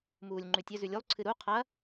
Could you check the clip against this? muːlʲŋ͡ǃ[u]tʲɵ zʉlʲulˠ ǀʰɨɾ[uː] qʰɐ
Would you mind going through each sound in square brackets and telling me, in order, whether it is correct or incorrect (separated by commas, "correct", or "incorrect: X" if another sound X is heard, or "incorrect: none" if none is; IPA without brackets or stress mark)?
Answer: incorrect: ʉ, incorrect: u